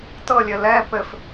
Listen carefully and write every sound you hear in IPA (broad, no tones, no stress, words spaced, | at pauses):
tɤlʲɘ lɛ pɘf